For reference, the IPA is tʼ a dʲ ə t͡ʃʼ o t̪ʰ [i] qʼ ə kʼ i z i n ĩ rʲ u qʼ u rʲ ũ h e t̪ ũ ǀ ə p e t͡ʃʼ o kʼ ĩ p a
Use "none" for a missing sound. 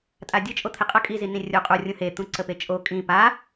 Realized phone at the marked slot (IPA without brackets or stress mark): i